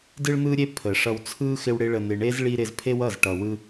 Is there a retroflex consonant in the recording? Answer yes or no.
yes